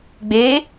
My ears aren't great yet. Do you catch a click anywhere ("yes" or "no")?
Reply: no